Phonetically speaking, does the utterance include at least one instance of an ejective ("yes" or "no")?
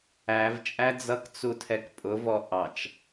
yes